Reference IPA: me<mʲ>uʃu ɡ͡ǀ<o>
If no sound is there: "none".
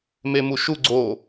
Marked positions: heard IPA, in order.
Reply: m, o

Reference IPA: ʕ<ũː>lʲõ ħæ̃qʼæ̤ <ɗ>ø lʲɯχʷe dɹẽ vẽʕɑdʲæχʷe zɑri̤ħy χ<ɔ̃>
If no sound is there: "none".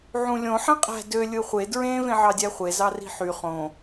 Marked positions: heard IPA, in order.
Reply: ũ, d, õ

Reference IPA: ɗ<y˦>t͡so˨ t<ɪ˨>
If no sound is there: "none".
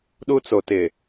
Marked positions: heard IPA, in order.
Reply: u˦, ɪ˨

